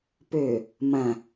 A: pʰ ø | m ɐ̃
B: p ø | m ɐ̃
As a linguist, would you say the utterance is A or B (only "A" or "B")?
B